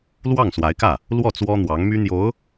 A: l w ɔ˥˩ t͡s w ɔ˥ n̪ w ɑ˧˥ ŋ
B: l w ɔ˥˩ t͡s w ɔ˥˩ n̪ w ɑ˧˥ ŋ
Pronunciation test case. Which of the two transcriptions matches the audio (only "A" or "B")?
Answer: A